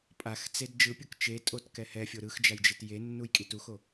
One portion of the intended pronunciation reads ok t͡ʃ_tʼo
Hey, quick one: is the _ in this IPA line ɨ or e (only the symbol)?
e